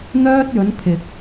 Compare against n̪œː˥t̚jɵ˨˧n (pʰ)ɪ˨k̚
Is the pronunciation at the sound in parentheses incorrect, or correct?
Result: correct